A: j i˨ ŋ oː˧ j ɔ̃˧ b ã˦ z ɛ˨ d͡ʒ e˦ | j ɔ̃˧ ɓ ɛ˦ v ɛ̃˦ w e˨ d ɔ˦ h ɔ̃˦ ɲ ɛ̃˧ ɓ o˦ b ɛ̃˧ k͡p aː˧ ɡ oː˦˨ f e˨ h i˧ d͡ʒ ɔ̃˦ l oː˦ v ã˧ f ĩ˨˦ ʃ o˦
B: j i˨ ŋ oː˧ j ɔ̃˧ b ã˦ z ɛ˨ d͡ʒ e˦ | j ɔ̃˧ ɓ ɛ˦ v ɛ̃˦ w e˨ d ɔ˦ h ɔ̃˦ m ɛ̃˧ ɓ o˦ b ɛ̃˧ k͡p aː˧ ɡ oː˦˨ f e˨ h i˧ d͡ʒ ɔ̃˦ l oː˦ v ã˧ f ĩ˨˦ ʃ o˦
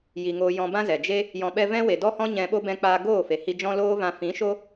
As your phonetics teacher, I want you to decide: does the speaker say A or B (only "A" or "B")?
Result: A